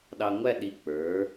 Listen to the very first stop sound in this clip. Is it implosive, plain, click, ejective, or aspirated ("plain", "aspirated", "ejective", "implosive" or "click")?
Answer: implosive